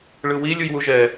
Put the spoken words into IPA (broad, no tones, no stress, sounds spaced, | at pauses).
ɭ ɯ w i lʲ u j w u ʒ ɛ